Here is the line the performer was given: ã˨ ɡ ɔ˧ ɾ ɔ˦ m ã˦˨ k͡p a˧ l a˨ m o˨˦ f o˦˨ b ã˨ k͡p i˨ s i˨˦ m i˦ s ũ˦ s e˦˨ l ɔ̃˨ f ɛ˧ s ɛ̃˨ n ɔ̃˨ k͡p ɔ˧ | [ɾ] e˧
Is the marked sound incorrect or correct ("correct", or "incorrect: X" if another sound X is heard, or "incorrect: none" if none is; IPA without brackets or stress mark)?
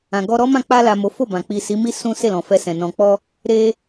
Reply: correct